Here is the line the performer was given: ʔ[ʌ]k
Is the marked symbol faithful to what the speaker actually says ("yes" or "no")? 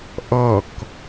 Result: yes